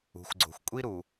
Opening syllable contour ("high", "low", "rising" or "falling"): low